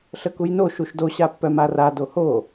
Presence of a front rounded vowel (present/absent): present